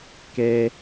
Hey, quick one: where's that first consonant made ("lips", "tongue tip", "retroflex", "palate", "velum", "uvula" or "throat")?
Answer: velum